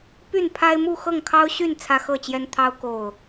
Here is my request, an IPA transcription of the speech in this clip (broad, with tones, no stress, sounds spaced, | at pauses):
p y˥˨ n pʰ a˦ ɪ̯ m u˥˨ x ɤ˥˨ ŋ kʰ ɑ˦ ʊ̯ ɕ y˥˨ n t͡sʰ ä˦ x ɤ˥˨ t͡ɕ j ɛ˦ n t̪ʰ ɑ˦ ʊ̯ k o˥˨ ʊ̯